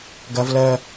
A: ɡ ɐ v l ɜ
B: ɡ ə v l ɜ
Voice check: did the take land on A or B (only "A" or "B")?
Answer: A